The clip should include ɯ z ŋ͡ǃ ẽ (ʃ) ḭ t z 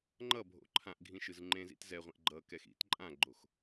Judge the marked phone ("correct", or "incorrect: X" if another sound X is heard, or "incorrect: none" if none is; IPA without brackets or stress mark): incorrect: z